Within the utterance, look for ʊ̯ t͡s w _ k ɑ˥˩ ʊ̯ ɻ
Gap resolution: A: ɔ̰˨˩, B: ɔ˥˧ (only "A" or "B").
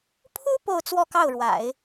B